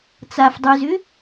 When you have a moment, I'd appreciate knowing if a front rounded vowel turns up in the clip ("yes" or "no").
yes